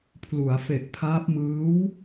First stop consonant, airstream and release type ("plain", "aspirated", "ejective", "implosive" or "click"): aspirated